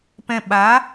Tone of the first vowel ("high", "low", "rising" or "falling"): low